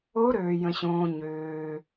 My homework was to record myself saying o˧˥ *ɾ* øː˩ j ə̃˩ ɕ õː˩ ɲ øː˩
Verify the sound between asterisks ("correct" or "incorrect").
correct